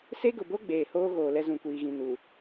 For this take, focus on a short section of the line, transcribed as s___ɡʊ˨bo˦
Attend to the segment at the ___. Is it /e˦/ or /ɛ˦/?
e˦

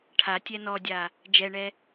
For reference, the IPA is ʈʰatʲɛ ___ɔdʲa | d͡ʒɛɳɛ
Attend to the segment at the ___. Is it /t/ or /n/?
n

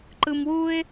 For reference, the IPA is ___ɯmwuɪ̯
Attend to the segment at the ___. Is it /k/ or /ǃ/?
ǃ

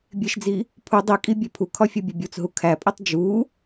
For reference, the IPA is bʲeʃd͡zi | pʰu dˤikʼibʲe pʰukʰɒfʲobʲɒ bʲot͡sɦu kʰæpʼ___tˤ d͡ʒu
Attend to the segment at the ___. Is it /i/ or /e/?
i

